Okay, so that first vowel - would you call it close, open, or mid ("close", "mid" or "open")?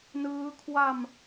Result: close